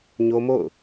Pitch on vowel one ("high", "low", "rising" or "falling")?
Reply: high